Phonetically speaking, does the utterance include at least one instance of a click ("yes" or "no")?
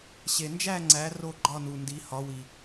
yes